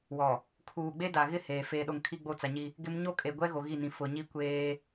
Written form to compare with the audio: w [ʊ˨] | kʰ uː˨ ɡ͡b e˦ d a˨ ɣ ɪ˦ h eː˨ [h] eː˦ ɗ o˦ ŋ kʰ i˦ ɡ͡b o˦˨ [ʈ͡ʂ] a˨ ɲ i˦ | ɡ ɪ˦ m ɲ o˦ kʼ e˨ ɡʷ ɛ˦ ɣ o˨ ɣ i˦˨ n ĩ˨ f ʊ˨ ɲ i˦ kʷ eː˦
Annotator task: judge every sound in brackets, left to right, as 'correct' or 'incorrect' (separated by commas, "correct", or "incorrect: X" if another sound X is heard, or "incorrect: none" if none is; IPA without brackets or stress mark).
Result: incorrect: ɔ˨, incorrect: f, incorrect: t͡s